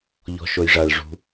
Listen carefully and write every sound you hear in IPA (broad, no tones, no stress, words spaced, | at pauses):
ʎɔ̤ʃojʐaɭ ʐṳ